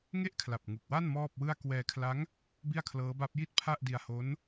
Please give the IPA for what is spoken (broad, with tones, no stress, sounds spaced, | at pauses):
ŋ e˥˩ ʔ kʰ l a˨˩ p̚ ŋ u˨˩ k̚ w a˥˩ n m ɔː˥˩ p̚ w ɯ˥˩ a̯ k w ɛː˧ kʰ l a˦˥ ŋ | b i˥˩ a̯ kʰ l ɤː˦˥ b a˦˥ p̚ j i˥˩ t̚ pʰ a˥˩ ʔ d i˧ a̯ h o˦˥ n